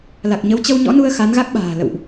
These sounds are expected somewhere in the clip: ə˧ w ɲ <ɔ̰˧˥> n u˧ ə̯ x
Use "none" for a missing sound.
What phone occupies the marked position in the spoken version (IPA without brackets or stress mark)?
ɔ̰˧˥